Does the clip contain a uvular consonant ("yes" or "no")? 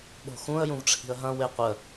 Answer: yes